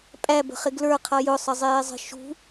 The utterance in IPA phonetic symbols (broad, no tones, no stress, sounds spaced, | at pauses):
pʼ æ b ə̤ χ ɪ ɡ l ə˞ qʰ ʌ j ʊ sˤ ə zˤ ɪː zˤ ə̤ ʃ ṳ